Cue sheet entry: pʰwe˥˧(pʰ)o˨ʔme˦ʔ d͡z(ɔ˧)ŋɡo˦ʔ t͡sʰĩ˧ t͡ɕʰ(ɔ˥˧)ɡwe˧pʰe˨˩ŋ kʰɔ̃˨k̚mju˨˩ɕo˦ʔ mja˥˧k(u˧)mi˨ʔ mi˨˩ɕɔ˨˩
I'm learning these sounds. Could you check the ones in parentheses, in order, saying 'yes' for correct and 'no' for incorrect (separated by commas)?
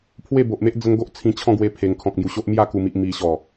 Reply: no, no, no, no